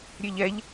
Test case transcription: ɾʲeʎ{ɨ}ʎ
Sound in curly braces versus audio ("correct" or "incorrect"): incorrect